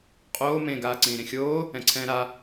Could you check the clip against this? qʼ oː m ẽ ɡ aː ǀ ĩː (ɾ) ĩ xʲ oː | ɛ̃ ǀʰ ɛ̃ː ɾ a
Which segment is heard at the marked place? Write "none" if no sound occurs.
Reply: ɾ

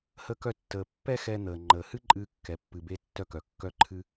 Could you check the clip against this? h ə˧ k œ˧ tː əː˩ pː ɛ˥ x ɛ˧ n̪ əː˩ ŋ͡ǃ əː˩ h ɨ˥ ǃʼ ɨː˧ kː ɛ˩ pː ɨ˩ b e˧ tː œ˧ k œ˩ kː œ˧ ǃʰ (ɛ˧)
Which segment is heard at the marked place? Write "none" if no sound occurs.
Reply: ɨ˧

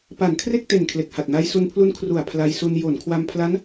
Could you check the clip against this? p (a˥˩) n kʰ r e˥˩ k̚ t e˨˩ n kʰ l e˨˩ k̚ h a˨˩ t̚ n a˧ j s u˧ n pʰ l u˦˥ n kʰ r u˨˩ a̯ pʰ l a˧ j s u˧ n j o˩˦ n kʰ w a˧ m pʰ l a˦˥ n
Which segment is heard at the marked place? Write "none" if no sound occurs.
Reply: a˩˦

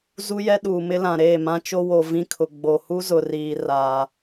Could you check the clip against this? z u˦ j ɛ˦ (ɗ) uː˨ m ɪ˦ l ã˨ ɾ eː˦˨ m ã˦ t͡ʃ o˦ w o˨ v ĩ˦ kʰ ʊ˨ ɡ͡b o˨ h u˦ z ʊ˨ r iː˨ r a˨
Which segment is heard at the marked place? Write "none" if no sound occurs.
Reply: ɗ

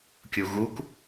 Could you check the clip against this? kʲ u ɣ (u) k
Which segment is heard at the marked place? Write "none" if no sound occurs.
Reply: u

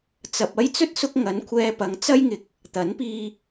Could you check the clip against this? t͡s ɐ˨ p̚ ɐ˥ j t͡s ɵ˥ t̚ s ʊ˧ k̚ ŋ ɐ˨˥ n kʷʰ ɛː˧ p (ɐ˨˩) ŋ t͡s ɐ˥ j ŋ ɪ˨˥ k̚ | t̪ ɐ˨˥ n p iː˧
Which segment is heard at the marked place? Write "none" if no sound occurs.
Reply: ɐ˨˥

